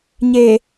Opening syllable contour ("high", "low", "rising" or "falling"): low